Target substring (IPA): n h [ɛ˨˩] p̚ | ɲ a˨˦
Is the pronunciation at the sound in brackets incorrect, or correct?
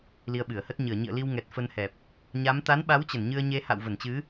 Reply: correct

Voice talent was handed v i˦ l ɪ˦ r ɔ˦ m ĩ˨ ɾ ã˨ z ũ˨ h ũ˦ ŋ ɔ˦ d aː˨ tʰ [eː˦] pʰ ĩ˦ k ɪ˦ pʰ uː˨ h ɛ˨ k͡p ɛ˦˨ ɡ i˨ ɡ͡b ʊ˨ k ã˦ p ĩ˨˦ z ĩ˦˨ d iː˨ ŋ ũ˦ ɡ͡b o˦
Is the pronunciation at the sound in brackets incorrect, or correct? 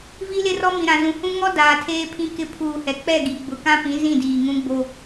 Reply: correct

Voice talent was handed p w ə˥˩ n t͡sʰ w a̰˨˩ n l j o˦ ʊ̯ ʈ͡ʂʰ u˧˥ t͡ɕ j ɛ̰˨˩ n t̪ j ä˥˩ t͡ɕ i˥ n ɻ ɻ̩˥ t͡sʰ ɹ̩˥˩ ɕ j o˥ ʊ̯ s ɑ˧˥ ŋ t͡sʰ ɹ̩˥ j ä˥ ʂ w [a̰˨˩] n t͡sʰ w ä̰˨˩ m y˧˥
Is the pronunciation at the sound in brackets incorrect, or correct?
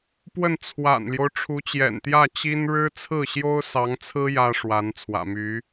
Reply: incorrect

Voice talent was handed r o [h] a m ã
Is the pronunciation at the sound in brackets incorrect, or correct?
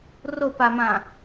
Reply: incorrect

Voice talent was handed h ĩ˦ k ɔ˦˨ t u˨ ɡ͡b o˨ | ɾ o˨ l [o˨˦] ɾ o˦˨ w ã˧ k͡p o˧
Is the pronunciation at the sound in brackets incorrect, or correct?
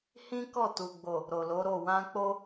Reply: correct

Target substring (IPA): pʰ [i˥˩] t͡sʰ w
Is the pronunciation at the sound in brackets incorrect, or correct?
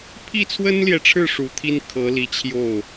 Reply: correct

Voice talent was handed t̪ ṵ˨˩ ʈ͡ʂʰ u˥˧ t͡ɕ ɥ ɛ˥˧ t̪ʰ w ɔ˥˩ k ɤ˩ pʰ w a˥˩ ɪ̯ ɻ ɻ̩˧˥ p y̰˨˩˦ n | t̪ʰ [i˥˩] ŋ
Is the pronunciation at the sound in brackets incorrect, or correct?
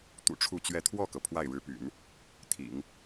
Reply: incorrect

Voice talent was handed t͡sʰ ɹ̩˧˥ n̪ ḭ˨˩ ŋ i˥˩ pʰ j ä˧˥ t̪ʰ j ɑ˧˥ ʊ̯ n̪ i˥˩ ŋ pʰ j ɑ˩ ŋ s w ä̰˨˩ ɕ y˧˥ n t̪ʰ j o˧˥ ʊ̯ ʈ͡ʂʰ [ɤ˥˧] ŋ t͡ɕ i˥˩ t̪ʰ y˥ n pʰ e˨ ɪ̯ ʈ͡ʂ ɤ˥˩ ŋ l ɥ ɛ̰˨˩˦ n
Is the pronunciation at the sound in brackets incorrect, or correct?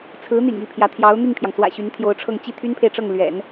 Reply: correct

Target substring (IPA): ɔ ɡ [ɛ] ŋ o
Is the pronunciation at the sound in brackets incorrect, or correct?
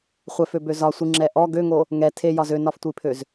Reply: incorrect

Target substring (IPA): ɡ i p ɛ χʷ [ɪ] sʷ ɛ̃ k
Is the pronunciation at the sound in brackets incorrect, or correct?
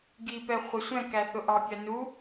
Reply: correct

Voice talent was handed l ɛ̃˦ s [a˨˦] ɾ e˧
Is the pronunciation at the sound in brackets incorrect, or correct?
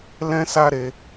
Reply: incorrect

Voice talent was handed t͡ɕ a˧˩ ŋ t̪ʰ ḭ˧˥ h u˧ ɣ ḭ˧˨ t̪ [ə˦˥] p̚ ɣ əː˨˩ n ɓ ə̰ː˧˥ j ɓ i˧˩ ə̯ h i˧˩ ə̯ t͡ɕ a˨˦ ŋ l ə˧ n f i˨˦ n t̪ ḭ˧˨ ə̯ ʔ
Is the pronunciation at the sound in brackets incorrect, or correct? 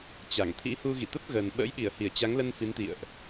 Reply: correct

